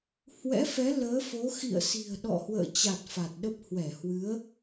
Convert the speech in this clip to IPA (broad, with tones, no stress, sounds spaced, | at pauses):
h w ɛ̰˧˥ f ɛ˨˦ l əː˨˦ f o˨˦ x ḭ˧˨ ə̯ s i̤˨˩ ə̯ ɗ ɔ̰˧˨ h w ə̰ː˧˨ t͡ɕ a˨˩ t̚ f a˨˩ t̚ ɗ ə˦˥ p̚ h w ɛ˧˩ h w ɨ˨˦ ə̯